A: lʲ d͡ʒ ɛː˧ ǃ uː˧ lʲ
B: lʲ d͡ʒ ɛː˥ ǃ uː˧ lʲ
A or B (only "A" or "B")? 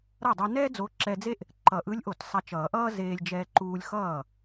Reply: A